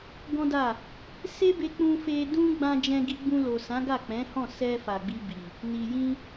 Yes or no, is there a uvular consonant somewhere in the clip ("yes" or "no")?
no